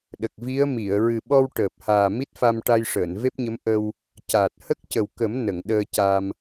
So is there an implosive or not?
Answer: yes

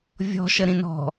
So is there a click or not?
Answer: no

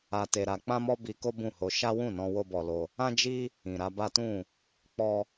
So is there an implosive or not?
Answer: no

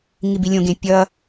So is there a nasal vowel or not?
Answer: yes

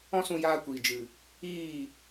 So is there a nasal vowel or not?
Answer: yes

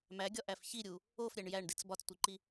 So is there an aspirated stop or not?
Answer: no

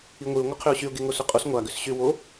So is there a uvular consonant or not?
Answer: yes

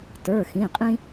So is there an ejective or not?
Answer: yes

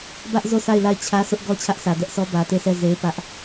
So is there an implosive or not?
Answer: no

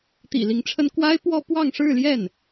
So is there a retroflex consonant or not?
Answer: yes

